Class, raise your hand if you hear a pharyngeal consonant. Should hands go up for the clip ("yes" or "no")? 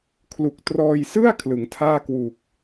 no